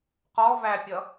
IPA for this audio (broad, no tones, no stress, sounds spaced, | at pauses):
q ɔ v æ pʲ ʌ